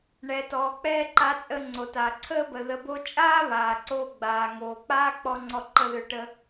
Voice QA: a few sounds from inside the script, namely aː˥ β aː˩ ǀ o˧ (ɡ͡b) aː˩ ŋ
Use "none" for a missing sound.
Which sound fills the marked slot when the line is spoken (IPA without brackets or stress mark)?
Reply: ɡ͡b